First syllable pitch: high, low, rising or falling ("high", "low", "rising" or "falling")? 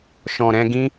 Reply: low